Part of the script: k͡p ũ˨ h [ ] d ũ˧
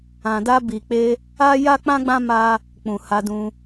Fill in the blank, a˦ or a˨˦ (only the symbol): a˨˦